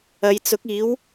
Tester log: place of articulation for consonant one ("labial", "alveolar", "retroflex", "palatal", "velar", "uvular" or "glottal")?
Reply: palatal